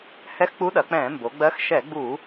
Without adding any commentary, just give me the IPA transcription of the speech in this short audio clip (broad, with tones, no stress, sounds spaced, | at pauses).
h ɛ˧˥ x k͡p u˧˥ ɗ ɐ˩˧ k͡p ɛ̃ː˧˩˧ m b o˩˧ ɡ͡b ɜ˧˥ x ʃ ɛ˧˩˧ ɡ͡b u˧˩˧